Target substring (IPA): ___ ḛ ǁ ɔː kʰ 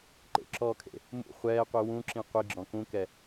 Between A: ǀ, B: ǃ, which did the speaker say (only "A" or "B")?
B